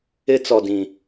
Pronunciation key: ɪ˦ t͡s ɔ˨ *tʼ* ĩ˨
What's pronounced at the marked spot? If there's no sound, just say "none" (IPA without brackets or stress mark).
d